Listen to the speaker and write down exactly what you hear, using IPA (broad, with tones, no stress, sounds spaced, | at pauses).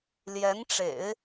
l j ɛ˧˥ n ʈ͡ʂ ḛ˨˩˦ ɪ̯